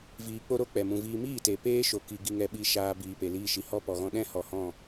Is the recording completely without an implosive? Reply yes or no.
no